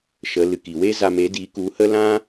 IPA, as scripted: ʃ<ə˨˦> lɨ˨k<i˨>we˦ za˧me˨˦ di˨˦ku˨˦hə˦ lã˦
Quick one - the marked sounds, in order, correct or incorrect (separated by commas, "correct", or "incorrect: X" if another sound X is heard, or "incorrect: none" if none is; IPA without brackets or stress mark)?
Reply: correct, correct